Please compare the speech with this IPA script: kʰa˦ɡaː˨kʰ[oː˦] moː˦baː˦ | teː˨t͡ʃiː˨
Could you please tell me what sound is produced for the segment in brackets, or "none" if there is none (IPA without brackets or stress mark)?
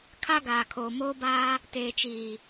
oː˨